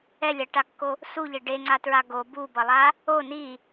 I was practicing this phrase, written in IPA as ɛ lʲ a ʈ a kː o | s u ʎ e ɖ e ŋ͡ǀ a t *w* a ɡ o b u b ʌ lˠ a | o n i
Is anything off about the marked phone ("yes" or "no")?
yes